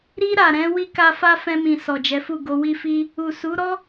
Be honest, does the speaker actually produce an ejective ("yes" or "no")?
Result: no